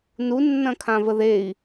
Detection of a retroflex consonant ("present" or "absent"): absent